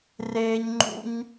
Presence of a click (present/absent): present